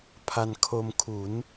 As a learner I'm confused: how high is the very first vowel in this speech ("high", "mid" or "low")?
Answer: low